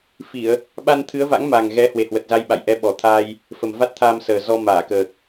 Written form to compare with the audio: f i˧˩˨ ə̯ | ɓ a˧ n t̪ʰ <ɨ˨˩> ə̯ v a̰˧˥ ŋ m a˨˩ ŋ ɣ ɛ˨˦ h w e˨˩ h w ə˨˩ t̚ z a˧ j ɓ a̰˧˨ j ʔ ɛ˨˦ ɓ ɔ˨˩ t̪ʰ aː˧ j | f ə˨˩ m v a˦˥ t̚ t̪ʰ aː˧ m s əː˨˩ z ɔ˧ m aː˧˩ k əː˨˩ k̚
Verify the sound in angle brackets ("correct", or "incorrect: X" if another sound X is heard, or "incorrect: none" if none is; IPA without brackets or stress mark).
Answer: incorrect: ɨ˨˦